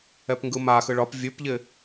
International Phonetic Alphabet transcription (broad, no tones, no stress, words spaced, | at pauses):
ɛpŋɡɯmaxɯ ɭɒp vʲʉpʎɪ